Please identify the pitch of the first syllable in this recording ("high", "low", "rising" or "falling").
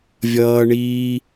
high